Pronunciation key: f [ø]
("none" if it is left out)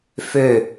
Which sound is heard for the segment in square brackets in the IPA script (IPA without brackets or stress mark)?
ø